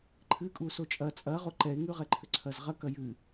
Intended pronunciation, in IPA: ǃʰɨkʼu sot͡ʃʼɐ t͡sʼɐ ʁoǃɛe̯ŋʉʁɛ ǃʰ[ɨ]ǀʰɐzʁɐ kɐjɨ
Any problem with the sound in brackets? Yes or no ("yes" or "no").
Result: yes